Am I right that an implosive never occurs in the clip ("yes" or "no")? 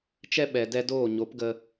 no